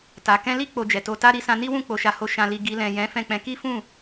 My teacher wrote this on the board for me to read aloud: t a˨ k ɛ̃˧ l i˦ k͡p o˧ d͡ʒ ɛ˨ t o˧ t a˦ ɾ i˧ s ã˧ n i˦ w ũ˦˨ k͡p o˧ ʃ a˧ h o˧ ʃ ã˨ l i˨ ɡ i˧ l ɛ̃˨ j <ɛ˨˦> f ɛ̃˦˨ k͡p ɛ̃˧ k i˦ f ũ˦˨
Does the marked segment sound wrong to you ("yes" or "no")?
yes